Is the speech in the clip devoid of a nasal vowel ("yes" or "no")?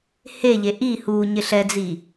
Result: yes